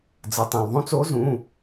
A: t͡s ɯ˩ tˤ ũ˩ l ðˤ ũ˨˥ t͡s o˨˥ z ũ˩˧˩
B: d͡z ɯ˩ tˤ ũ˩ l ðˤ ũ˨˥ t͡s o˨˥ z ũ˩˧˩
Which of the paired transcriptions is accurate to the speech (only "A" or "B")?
B